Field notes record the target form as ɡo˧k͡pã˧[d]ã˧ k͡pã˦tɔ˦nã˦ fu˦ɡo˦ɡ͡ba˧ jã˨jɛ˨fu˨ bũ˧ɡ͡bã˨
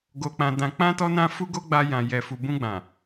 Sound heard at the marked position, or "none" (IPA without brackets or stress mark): d